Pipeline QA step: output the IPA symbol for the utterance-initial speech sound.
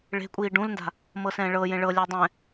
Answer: ɭ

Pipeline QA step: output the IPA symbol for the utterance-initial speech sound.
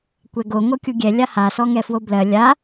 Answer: kʷ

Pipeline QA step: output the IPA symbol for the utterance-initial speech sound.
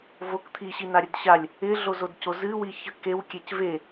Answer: v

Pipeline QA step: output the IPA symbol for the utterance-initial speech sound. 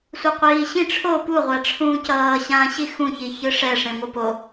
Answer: sʷ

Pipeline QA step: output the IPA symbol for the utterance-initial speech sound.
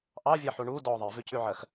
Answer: ʔ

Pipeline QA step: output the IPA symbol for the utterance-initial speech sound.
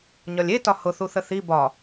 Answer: ɲ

